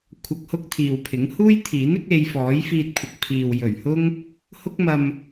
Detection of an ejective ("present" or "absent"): absent